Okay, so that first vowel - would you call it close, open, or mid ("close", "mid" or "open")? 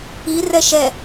close